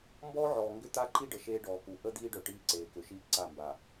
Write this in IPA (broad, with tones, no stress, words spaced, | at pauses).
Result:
mbɔː˦ʕɔː˨ ŋɡʏ˦t̪a˦ǃi˦ɖə˨ ʃeː˦ɖɔː˨ku˨ ʔə˦ d̪iː˦ɖœ˨ ʈiː˦ǀeː˨kʏ˨ʃiː˦ ǀa˦˨mba˨